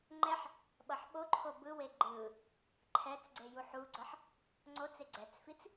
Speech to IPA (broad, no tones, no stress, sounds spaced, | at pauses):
ŋ͡ǃ ɛ ħ | ɓ ʌ ħ ɓ o ǃʰ o b ɯ w e ɡ͡ǃ ɯ | ǃʰ ɛ t͡s ɡ͡ǀ e j u ħ u ɡ͡ǀ ʌ ħ | ŋ͡ǀ o t͡s e ɡ͡ǀ ɛ t͡s f i t͡s